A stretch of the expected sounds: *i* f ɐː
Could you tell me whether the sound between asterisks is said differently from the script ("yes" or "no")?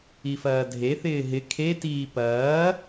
no